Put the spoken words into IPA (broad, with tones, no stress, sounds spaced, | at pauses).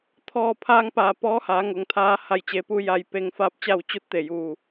t̪ʰ ɔː˧˩ pʰ aː˧ ŋ p aː˩ p ɔː˧˥ h aː˩˧ ŋ o˩˧ ŋ t̪ʰ aː˧˥ h a˧˩ j t͡ɕ e˩˧ p u˧ j a˧˩ j p e˧˩ ŋ f aː˥˨ p̚ t͡ɕ a˥˨ w t͡ɕ u˧˥ t̚ t̪ e˧˩ j u˧˩